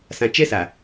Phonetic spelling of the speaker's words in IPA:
s ã˨ t͡ʃ ɛ˦ s a˨

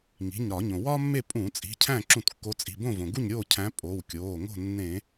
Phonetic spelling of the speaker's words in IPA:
ŋ i̤˩˧˩ ɲ ɾ ɒ˧˩˧ ɲ õ˩ w ɒ˥ mː e˥˨ pʼ ũː˧˩˧ t͡sʼ i̤˩˧˩ cʰ æ̃˥˨ ǁ ũ˧˩˧ t kː o˨˦ t͡sʼ i̤˩˧˩ b õ˥˨ v õ˩ ɡ u˥˨ ɲ ɾʲ oː˥˨ cʰ æ̃˨˦ pʼ o˩˧˩ w kʲ oː˩˧˩ ŋ o̤˥˨ nː ẽ˧˩˧

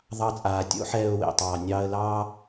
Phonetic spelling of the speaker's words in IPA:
ðˤ ɑ˧ t͡sʼ aː˨ tʲ o̰˦ ħ ɛː˧ ʊ̯ w ḛ˨ tˤ ɑː˨ nʲ ɑː˧ ə̯ l ɑː˦

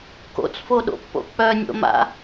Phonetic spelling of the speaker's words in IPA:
k o̰ t͡s f o ɗ o̰ pː o̰ k͡p œ nʲ o̰ m a̰

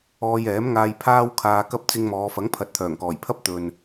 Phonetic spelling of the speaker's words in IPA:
ɔː˧ j ɛː˨˥ m ŋ aː˧ j pʰ aː˥ w kʰ aː˧ k ɐ˥ p̚ t͡s ɪ˧ ŋ m ɔː˨˧ f ɐ˨˥ ŋ pʰ ɐ˨˥ t̚ t̪ʰ œː˨˩ ŋ k ɔː˨˩ j pʰ ɐ˥ p̚ t̪ ɵ˨ n

